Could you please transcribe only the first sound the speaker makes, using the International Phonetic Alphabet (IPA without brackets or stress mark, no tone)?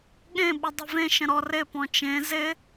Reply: ɠ